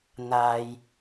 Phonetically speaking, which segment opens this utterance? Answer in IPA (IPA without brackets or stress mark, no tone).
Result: n̪